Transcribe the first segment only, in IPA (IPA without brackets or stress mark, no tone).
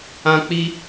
ã